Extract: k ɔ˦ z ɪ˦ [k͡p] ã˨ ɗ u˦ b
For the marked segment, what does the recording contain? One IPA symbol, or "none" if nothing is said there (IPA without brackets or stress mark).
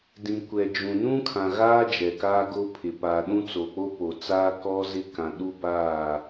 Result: k